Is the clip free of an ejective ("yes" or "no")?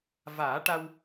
yes